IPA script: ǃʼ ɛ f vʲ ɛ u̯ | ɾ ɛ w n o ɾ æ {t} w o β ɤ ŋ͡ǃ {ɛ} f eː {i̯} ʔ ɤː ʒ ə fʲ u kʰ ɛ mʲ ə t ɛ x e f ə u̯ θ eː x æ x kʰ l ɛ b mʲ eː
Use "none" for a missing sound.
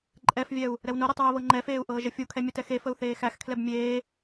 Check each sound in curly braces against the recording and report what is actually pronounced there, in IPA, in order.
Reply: tˤ, ɛ, u̯

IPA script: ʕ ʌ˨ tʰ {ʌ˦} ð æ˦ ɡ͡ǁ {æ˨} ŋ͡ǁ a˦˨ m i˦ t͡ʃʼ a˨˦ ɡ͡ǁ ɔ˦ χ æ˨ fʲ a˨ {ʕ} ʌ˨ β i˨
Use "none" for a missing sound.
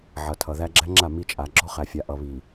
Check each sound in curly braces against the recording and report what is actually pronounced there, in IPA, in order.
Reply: ʌ˨, æ˦, ʔ

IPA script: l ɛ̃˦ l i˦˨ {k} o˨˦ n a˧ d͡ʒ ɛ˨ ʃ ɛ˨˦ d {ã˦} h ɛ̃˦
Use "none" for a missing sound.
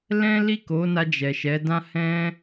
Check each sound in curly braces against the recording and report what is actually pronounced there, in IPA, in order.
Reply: k, ã˦

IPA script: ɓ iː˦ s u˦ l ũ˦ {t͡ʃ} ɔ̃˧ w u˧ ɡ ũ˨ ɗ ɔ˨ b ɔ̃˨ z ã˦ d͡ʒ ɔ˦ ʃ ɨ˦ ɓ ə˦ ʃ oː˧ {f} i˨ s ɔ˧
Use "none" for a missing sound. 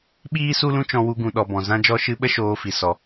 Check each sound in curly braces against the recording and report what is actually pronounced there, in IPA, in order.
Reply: t͡ʃ, f

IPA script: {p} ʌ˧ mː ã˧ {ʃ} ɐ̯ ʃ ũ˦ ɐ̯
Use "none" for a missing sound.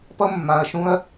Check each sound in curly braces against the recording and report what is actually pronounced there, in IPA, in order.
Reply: p, none

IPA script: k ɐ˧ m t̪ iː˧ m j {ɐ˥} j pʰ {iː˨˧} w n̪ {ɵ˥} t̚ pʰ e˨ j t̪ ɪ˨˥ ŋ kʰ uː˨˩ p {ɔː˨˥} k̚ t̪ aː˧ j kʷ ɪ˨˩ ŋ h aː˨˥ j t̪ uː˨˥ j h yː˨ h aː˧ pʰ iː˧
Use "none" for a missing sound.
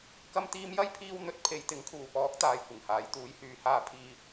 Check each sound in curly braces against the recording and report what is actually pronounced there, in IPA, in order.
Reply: ɐ˥, iː˧, ɵ˨, ɔː˨˥

